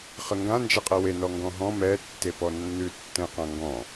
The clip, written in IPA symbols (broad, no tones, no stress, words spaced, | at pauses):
χəŋɡã nd͡ʒɛqʼɛwe nɔŋɡɔ̃ɦɔ̃ mɛ tːepɔnːʉ tːɛ̃qãŋɡɔ̃